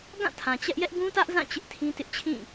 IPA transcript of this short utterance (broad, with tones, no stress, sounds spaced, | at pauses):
ɡ ã˦˨ tʰ ã˨ t͡ɕ ɛ˦ ʔ j ɛ˦ ʔ ɡ ũ˦ t ä˦ ʔ z ã˦˨ t͡ɕ ɪ˦ ʔ tʰ ĩ˦ t ɪ˦ ʔ t͡ɕʰ ĩ˦˨